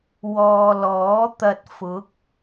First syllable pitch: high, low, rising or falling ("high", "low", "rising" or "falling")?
low